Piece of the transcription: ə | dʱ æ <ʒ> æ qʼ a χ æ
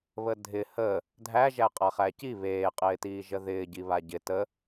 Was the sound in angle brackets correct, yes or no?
yes